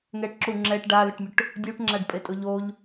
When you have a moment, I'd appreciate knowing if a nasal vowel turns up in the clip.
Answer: no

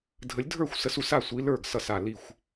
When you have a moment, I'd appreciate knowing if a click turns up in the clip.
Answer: no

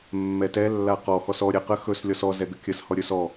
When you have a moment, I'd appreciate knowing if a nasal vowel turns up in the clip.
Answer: no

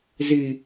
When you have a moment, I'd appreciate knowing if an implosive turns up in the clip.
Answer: no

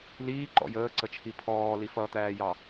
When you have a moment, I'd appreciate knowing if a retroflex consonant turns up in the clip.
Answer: no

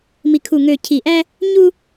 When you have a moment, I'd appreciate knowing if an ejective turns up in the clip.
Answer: no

